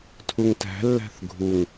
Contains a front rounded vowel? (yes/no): no